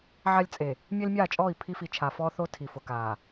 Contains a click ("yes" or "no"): no